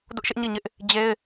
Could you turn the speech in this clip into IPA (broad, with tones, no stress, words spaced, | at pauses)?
dʊ˦ʔʃɪ˦ʔ ɲi˦˨ɲɪ˦ʔ | d͡ʑe˦ɪ̯